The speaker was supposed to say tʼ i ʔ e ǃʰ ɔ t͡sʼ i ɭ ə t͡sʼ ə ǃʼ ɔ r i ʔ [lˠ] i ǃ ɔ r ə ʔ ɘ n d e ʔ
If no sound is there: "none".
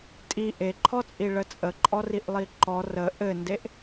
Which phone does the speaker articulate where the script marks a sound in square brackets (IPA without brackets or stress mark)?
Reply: lˠ